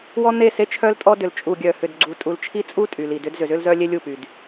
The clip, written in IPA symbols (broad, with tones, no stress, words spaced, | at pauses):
wɔ˦n̪e˦˨se˦t͡ʃʰœ˦l tʼɔ˦ dʏ˨l t͡ʃʼu˨ɡʲœ˨ hʏ˨dɡ͡ǀu˨ tʼu˨lt͡ʃʰi˦t͡sʼu˦ tʼy˨li˨dʏ˦d zʏ˨zʏ˦lzœ˦lʲe˦ lʲu˦˨py˨d